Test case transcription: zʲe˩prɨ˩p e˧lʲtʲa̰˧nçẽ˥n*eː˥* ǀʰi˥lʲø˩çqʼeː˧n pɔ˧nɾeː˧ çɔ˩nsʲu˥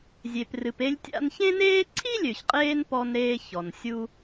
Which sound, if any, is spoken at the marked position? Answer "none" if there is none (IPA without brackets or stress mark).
eː˥